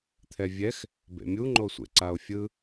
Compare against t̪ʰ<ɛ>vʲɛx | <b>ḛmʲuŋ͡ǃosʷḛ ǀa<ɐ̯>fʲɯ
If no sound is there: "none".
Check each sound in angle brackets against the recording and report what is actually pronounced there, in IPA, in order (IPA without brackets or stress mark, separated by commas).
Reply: ɛ, b, o̯